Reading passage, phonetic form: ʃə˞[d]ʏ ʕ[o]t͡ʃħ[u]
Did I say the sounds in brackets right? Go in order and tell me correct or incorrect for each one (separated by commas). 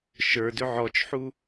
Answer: correct, incorrect, correct